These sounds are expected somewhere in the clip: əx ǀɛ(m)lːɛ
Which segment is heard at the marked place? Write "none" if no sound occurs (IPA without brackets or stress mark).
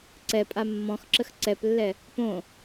p